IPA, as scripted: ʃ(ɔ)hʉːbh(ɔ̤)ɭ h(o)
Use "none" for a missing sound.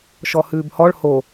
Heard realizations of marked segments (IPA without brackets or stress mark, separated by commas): ɔ, ɔ, o